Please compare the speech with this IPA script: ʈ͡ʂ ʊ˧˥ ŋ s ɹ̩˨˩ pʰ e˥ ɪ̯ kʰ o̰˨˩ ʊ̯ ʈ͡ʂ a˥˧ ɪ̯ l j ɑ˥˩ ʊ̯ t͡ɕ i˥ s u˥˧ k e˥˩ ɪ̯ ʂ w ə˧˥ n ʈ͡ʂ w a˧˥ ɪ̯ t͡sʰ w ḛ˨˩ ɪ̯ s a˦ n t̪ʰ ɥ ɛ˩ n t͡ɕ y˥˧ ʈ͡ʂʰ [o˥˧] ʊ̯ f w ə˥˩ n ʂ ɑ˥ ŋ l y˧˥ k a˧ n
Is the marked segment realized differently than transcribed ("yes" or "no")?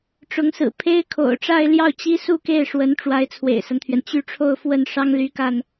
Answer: no